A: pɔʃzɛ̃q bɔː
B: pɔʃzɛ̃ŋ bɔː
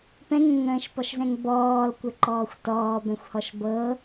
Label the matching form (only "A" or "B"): B